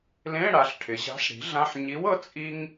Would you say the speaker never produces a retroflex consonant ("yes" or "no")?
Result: no